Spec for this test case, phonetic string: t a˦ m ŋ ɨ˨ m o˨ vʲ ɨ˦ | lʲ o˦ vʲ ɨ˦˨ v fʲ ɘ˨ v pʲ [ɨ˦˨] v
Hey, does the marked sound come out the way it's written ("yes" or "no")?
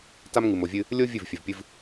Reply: no